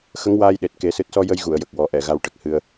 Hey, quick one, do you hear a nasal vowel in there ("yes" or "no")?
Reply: no